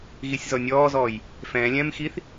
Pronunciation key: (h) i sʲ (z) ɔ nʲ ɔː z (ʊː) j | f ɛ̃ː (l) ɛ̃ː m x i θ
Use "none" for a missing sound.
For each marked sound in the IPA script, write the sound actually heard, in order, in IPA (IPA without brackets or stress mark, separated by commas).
ɣ, z, ɔː, lʲ